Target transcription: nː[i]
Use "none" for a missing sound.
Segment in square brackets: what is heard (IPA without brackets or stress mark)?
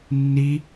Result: i